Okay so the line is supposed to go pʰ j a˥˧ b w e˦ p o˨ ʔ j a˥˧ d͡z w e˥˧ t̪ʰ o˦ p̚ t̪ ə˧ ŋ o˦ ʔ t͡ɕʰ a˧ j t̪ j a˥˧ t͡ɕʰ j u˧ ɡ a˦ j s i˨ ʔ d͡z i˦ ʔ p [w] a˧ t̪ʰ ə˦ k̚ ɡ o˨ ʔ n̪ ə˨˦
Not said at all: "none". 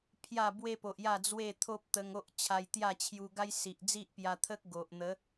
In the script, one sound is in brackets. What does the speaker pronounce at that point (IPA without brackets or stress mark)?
j